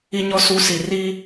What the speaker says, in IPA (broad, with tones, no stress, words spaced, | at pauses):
i˨ɲɔ˨ su˨˦si˨ ri˦